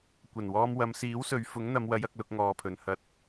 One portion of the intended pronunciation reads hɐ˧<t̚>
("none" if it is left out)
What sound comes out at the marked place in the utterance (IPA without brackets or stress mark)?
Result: t̚